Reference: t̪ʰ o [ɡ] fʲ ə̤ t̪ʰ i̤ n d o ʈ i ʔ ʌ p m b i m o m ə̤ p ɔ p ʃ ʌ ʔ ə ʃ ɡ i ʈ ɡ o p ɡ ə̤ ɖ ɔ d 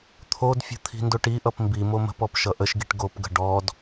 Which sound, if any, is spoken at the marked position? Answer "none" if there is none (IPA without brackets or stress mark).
d